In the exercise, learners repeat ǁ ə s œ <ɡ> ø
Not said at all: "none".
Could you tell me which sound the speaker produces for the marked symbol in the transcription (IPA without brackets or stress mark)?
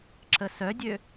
dʲ